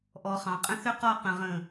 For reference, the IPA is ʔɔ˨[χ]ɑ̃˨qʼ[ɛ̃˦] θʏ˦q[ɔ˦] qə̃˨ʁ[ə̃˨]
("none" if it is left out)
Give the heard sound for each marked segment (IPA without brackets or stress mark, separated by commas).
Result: χ, ə̃˦, ɔ˦˨, ə̃˨